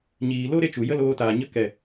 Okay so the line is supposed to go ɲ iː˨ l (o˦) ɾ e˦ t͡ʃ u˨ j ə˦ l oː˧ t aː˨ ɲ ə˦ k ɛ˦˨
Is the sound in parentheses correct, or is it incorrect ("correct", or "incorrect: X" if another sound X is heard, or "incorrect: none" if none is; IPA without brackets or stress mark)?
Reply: correct